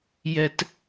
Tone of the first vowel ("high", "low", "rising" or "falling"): high